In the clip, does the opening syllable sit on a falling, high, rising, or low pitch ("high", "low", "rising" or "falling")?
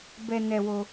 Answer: low